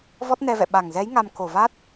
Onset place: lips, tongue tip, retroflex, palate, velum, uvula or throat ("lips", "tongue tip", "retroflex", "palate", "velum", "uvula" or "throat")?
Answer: lips